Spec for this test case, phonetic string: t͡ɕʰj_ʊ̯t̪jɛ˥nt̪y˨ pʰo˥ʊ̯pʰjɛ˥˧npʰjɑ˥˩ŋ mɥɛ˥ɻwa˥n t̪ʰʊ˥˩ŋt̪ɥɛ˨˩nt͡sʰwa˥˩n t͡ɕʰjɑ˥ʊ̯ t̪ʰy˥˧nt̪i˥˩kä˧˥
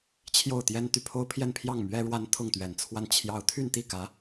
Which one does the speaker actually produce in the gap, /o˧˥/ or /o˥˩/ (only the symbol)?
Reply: o˥˩